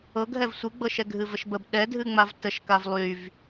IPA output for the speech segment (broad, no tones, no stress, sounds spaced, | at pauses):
ɤ ɡ ɦ ɛ v sʷ ɨ ɡ͡b ɤ ʃ ɛ ɡʱ ɨ v ə ʃ b ə b ɗ ɛ dʱ ɨ ŋ͡m a v t ə ʃ k a v lˠ y v